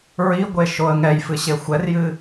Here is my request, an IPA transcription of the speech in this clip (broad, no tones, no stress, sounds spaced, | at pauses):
ɹ i ɡʷ e ʃ o ə̯ ŋ ɛ j f ɨ ɕ e xʷ ɛ r j ɨ